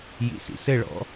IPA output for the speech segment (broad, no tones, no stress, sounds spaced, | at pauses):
j ḭ s ḭ s ɘ ɭ ɔ̰